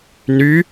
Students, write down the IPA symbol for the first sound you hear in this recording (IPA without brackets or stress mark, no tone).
n